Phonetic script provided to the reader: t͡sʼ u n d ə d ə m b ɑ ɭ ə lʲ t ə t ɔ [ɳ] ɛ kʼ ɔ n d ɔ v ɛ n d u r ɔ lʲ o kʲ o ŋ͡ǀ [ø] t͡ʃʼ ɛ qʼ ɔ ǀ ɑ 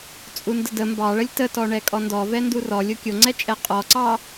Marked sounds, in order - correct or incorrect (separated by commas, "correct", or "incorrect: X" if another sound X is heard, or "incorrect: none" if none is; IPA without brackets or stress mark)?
correct, incorrect: ɛ